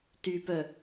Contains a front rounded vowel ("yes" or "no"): yes